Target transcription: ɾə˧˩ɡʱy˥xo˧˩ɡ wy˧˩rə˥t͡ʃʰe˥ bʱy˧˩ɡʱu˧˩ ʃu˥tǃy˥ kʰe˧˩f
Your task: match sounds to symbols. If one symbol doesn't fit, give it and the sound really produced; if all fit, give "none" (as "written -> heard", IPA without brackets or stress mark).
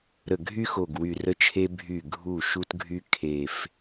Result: ǃ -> ɡʱ